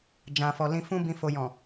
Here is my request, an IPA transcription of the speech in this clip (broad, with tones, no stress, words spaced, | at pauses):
d͡ʒã˨fɔ˨lĩ˧fũ˦ bĩ˧ fo˨jɔ̃˨